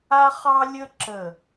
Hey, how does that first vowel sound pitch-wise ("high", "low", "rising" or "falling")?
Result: high